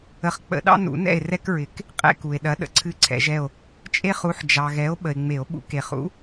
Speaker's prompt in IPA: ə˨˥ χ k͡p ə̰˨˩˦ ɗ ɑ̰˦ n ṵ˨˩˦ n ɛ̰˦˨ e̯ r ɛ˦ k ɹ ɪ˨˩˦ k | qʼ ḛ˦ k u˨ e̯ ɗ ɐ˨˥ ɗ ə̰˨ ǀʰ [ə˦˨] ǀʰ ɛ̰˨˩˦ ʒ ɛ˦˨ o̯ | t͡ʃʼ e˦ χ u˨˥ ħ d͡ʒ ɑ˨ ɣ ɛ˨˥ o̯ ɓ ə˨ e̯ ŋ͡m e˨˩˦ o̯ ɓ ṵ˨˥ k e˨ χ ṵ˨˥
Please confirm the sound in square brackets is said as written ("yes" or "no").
no